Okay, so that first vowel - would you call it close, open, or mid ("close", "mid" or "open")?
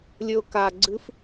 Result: mid